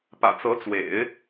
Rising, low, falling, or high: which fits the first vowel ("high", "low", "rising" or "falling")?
low